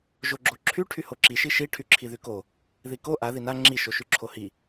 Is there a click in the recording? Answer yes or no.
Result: yes